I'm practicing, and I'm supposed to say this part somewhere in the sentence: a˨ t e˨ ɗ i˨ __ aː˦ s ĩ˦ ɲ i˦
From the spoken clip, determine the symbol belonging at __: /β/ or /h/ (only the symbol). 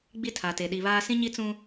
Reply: β